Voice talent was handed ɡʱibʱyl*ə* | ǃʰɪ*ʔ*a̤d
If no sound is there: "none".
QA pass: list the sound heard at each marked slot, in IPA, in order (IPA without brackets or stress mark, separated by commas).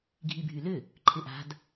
ʏ, ʔ